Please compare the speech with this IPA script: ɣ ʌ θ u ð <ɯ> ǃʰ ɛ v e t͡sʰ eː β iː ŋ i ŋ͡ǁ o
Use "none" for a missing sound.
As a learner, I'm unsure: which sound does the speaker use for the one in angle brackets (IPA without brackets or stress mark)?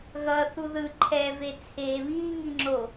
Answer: ɯ